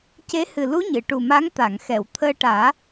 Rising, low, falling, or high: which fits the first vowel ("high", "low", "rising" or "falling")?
rising